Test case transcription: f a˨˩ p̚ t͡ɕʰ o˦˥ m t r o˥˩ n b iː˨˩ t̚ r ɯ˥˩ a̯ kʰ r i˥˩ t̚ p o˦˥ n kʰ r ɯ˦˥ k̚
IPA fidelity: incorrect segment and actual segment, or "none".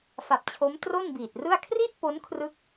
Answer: none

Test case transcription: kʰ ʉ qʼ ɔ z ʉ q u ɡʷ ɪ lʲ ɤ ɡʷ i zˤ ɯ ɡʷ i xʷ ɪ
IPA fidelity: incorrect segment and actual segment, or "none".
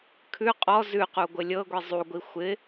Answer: ɯ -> u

